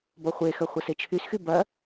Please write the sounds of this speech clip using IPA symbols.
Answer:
b ɔ χʷ e x ɐ χʷ ə s e t͡ʃʰ y s x y b ɐ

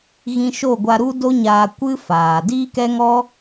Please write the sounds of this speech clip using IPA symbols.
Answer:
ɣ ĩ˧ ʃ o˦˨ ɡʷ a˧ ɾ u˦ d o˦ ɲ aː˧ kʷ ɨ˦ f aː˨ d iː˦ k ɛ˦ ŋ ɔ˦

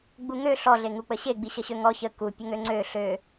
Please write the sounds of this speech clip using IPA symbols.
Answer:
ɡ͡b u ŋ ø ɬ ɔ ɮ e ŋ u k͡p ə ɕ e ɡ͡b i ɕ ə ɕ ø ŋ ɔ ç ə k u pʲ ə ŋ ø ŋ͡ǀ ø ɬ ø

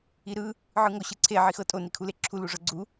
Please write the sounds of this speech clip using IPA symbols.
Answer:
i ɾ ɯ | ʕ ɯ ŋ o ɕ ɯ ǀʰ e ʕ i x ɤ tʼ o n i kʰ u l e ǁʰ u l u ʐ ɤ ɡ͡ǀ u

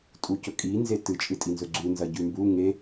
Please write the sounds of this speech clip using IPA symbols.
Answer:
tʼ u c ɵ kʼ i n z e t ɨ t͡ʃʼ ɨ tʼ i n z ɵ ɡ͡ǀ u n z ɐ ɟ ʉ m b u ŋ e

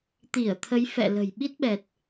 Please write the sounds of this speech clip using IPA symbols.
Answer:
t̪ i˧˩ ə̯ t̪ʰ ə˨˦ j f ɛ̰˧˨ l ə̤˨˩ j ɓ i˦˥ t̚ ɓ ɛ˨˩ t̚

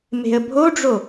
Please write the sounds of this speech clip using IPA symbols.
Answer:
m e̤ ə̯ bʱ o ɖ͡ʐ o

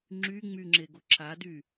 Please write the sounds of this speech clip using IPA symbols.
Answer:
ŋ͡ǁ y ŋ͡m y ŋ͡ǁ e ɡ o ǁʰ a d y

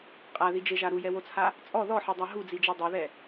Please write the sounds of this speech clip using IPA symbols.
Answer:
qʼ a ð i d͡ʒ e ʒ a ɾ u j ɛ w o t͡sʰ a | t͡sʼ ɔ ð ɔ ħ e dˤ a ɦ u d͡z i d͡ʒ e dˤ o ð ɛ

